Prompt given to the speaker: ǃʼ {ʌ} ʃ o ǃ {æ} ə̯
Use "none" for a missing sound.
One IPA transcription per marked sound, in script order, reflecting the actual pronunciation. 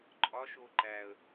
ɒ, æ

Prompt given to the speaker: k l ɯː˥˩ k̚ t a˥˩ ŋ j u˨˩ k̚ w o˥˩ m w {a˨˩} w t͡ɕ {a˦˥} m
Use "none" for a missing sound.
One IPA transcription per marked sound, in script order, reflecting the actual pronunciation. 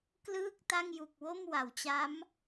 a˩˦, a˦˥

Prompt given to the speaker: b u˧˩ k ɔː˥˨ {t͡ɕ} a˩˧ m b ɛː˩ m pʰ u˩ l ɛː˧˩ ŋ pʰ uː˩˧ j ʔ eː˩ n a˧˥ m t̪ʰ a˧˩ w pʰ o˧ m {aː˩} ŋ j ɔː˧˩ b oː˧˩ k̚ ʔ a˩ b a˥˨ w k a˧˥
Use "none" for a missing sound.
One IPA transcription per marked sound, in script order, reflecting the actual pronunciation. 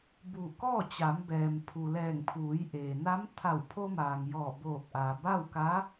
t͡ɕ, aː˩

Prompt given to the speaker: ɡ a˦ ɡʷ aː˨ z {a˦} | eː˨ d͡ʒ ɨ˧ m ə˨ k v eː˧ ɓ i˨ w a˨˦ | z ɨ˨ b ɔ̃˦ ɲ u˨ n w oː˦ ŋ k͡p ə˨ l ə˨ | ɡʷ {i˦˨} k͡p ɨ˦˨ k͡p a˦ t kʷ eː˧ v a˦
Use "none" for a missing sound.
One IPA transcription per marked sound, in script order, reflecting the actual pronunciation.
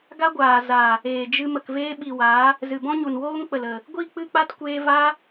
a˨, i˦˨

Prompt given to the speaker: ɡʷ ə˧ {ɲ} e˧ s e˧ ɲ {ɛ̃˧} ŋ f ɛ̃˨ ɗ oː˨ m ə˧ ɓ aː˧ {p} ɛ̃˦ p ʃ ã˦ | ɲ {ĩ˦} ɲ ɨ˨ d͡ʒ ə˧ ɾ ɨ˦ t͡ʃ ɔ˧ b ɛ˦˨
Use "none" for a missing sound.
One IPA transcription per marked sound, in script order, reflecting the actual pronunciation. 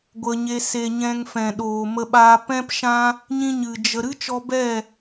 ɲ, ɛ̃˧, p, ĩ˧

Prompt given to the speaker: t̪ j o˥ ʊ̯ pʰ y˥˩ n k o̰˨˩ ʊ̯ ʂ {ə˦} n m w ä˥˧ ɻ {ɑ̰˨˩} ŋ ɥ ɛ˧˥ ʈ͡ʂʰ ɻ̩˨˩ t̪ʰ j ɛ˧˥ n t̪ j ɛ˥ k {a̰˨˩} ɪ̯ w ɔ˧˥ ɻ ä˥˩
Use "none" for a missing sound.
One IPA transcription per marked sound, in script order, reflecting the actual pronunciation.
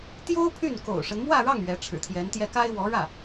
ə˦, ɑ˥˩, a˥

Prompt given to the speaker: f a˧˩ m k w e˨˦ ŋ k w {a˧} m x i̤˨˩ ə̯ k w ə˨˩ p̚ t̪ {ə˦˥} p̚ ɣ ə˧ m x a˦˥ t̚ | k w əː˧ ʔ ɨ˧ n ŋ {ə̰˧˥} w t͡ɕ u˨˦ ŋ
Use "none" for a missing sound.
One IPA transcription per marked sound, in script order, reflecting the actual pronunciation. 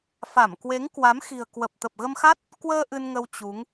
a˨˦, ə˨˩, ə˧

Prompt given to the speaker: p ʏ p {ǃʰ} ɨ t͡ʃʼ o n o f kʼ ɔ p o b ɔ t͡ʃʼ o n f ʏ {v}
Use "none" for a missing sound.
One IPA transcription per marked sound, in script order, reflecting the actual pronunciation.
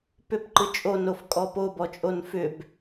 ǃ, b

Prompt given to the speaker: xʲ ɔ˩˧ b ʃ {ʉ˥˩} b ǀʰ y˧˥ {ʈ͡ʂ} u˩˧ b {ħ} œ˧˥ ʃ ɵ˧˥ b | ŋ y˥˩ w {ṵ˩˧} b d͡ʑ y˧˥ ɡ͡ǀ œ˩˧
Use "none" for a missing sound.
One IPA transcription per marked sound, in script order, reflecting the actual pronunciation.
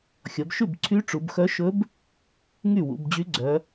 ʉ˥˩, ʈ͡ʂ, x, ṵ˩˧

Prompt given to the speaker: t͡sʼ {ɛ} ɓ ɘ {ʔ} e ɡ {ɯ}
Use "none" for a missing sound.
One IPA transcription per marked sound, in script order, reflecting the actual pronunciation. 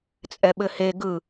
ɛ, h, ɯ

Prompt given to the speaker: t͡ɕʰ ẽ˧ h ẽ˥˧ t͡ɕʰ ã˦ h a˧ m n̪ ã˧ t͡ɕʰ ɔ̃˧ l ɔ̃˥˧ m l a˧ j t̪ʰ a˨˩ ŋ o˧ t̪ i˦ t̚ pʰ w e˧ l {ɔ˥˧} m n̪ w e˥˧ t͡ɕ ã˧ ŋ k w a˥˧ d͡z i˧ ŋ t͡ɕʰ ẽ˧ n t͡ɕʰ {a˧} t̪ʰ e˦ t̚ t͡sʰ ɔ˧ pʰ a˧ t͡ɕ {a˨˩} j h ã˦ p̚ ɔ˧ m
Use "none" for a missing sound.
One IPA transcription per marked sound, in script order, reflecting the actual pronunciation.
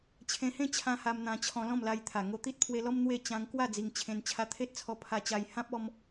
ɔ˦, a˧, a˧

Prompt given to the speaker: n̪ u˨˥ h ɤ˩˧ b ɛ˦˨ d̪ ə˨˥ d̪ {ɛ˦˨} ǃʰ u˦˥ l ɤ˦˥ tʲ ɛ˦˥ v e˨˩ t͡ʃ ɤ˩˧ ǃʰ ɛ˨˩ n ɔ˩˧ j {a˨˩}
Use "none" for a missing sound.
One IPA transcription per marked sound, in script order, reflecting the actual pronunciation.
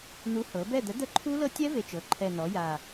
ə˦˨, a˨˩

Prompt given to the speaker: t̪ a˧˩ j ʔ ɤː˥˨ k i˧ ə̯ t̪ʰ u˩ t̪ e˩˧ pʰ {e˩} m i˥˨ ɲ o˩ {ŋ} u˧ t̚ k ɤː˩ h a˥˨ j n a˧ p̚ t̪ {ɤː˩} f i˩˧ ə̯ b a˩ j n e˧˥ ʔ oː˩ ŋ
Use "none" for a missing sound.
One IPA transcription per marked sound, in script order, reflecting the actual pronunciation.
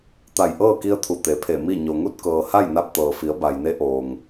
e˧˩, ŋ, ɤː˩

